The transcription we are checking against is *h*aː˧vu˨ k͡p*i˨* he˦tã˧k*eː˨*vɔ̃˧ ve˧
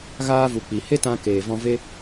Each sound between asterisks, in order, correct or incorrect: incorrect: ɣ, correct, correct

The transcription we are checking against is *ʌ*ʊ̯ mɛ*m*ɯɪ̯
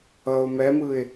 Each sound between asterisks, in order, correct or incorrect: correct, correct

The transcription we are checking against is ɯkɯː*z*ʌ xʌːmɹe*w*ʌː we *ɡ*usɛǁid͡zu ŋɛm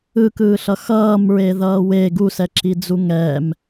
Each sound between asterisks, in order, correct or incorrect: incorrect: ɬ, incorrect: ð, correct

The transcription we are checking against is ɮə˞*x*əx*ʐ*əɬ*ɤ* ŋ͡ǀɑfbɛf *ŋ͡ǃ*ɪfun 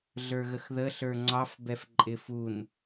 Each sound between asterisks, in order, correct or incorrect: incorrect: ɣ, incorrect: ð, incorrect: ə˞, incorrect: ǃʼ

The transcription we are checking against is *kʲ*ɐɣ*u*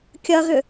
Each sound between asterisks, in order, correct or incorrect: correct, incorrect: ʏ

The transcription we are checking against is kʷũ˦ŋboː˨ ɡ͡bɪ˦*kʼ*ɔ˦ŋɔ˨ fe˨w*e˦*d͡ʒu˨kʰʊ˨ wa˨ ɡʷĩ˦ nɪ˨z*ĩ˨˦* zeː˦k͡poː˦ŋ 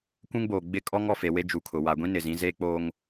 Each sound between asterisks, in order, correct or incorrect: correct, correct, correct

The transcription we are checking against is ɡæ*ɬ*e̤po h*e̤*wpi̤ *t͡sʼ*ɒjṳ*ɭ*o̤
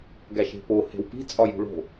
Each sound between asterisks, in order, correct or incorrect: incorrect: ʃ, correct, correct, correct

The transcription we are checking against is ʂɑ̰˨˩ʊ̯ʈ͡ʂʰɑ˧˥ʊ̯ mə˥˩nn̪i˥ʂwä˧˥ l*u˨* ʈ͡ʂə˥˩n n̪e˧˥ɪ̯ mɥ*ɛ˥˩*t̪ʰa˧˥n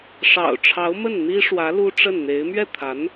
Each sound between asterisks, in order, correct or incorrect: incorrect: u˥, correct

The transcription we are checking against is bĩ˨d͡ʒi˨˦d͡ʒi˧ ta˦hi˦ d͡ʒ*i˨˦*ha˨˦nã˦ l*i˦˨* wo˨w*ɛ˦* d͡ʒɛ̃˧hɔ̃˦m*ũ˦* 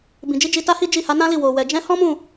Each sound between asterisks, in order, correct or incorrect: incorrect: i˦˨, correct, incorrect: ɛ˨, incorrect: ũ˦˨

